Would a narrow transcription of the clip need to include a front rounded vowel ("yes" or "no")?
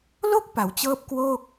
no